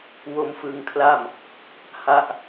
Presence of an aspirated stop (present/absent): present